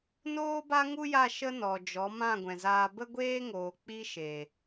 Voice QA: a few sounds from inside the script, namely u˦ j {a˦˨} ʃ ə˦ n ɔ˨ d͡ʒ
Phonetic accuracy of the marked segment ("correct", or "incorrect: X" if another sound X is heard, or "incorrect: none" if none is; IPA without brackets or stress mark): correct